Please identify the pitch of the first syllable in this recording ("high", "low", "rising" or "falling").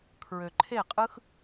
low